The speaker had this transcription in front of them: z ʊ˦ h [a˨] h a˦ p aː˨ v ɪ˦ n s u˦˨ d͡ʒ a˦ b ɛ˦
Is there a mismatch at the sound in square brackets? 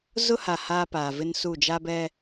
no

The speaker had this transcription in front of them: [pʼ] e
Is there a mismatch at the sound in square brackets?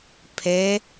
yes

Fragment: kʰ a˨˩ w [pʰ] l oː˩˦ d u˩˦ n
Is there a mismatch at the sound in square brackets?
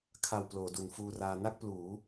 yes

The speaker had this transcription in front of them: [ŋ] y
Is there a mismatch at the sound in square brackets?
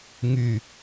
no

